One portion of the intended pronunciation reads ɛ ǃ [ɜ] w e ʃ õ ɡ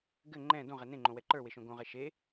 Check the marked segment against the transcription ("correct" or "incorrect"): incorrect